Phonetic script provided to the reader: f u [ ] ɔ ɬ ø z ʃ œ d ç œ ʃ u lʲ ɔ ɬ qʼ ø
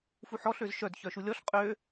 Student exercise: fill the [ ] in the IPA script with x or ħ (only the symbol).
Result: ħ